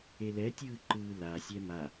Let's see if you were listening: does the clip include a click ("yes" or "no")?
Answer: yes